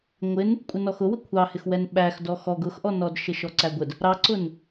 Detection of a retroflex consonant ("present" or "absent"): absent